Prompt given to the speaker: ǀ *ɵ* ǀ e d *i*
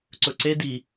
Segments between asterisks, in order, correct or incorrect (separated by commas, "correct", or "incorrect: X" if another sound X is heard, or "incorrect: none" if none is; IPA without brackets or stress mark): correct, correct